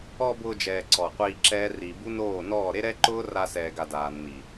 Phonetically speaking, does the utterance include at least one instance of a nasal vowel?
no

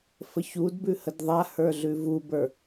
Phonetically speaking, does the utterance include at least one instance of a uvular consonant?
no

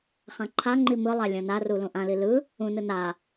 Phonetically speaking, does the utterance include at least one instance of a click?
yes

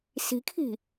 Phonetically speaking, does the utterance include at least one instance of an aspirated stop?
yes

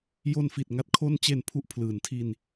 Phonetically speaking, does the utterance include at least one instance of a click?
no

